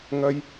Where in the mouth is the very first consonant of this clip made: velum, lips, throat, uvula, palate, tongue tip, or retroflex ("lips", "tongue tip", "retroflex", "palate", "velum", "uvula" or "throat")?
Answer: velum